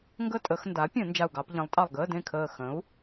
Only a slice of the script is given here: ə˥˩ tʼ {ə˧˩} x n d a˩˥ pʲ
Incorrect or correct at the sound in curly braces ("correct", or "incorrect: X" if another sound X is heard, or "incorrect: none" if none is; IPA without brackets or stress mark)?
incorrect: ə˧˩˧